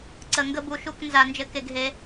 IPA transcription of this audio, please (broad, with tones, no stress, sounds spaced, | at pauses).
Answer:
ǀ ə˨˩˦ ŋ ɡ ə˦ b u˨ ʃ u˥˨ k n z a˨˩˦ n d͡ʒ ɘ˨˦ k e˨ ɡ ɦ e˨˦